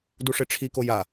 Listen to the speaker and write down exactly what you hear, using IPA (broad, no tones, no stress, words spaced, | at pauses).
duʂeʈ͡ʂʰiko ja